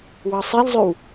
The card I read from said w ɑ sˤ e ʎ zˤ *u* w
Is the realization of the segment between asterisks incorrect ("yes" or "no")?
yes